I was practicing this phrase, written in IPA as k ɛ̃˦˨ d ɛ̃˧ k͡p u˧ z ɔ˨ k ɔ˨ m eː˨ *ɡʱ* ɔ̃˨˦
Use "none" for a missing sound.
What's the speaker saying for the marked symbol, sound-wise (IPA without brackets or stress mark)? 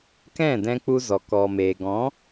ɡ